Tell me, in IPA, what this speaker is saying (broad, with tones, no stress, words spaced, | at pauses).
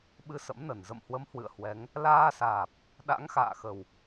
ɓɨ˧sə̰˧˥mnə˧˩n zə̰˧˨mhwə˨˦m hwɨ̰˧˨ə̯hwɛ˨˦ŋ | laː˧saː˨˩p̚ | ɗa̰˧˥ŋxa̰ː˧˨xə˨˩w